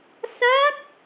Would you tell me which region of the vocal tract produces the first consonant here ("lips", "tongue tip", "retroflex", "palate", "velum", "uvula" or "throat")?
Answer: tongue tip